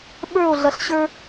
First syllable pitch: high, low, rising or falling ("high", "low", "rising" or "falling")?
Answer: falling